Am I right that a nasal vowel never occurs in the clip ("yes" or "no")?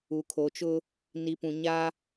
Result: no